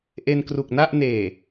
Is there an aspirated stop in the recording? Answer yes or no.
no